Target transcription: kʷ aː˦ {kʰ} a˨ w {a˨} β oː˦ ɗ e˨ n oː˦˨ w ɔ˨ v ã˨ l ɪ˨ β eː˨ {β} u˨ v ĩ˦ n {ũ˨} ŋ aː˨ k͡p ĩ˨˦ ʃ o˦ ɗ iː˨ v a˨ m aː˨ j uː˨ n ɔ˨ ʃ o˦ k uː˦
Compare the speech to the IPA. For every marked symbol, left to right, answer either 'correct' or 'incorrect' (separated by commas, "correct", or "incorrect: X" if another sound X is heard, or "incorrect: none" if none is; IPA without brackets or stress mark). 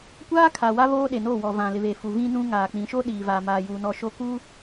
correct, incorrect: a˦, incorrect: f, incorrect: ũ˦